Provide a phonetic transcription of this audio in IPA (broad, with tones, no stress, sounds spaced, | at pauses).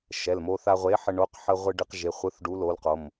ʃ ɛ˩˧˩ l m o˧ θ a˧ ʁʷ e˨˥ ħ ə˧ ɳ o˨˥ q ħ ə˧ ʁʷ ɨ˧ ɖ ɨ˧ q ʒ e˩˧˩ χʷ ɯ˨˥ θ ɖ u˨˥ l o˨˥ l q o˩˧˩ m